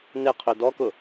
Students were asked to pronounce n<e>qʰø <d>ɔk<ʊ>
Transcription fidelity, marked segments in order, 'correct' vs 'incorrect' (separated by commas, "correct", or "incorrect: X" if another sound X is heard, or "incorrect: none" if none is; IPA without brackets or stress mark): correct, correct, correct